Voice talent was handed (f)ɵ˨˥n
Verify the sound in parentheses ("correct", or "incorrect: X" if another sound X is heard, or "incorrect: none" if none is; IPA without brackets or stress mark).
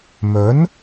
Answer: incorrect: m